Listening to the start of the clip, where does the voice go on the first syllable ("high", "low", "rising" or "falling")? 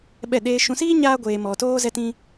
falling